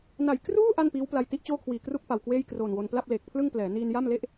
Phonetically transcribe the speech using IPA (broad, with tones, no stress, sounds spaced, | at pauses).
n a˨˩ j k r uː˥˩ ʔ a˥˩ n p iː˦˥ w p l a˧ j t i˥˩ ʔ t͡ɕ oː˥˩ kʰ w iː˨˩ k r u˥˩ k̚ p a˨˩ w k w eː˥˩ j k r oː˨˩ n w o˧ n p l a˥˩ p̚ l eː˨˩ k̚ pʰ l ɯ˥˩ ŋ p l ɛː˩˦ n iː˧ n j a˥˩ m l e˥˩ ʔ